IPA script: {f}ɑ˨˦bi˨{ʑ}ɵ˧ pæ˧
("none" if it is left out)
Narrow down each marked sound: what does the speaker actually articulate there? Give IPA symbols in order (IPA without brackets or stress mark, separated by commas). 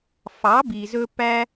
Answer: f, z